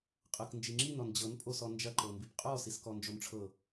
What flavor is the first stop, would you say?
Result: ejective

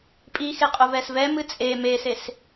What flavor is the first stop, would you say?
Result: ejective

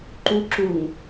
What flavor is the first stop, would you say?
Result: click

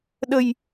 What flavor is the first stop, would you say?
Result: implosive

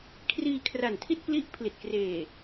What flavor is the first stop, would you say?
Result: aspirated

